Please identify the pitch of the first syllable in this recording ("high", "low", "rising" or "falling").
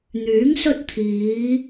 rising